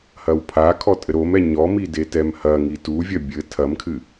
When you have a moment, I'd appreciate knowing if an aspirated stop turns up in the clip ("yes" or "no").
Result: yes